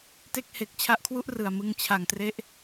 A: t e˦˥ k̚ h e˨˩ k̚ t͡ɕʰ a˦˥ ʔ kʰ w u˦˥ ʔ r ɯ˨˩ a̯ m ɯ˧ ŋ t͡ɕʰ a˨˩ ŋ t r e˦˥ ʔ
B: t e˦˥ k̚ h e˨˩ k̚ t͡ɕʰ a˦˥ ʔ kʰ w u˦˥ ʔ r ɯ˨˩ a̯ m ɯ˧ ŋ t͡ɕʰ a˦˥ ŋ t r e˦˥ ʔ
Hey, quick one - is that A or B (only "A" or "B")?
A